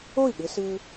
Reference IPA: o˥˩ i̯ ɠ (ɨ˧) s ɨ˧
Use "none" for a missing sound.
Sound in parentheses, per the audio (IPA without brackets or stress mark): ɨ˧